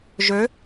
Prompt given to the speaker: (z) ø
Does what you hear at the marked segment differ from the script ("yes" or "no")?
yes